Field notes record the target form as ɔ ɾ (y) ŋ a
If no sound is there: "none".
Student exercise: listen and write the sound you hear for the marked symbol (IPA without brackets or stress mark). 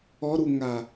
u